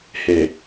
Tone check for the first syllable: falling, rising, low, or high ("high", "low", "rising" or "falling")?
low